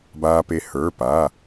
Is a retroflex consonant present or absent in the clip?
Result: absent